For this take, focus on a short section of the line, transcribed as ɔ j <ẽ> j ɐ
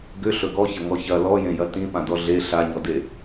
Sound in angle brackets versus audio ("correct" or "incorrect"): correct